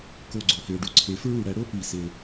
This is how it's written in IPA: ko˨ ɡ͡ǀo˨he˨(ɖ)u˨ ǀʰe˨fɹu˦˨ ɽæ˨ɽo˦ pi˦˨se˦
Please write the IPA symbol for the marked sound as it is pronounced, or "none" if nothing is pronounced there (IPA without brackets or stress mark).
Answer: ɖ